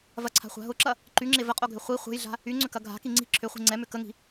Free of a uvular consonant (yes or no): no